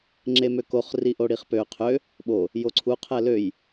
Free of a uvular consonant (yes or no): no